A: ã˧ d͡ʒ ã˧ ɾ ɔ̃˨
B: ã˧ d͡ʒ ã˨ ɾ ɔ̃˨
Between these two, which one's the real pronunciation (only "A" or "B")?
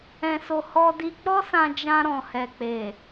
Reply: A